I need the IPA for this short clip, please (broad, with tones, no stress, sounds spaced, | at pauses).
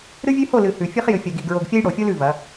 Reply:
ɾ ɨ˦ vʲ ʉ˦ h o˦˨ l ɨ˨ h ʉ˨ fʲ ɨ˦ χ j ɨ˨ fʲ ɐ˨ ɡ i˨ ɡ ɹ o˨ ɡ fʲ ɐ˦ j ɽ o˨ fʲ o˦ l ʉ˨ v ɐ˨˦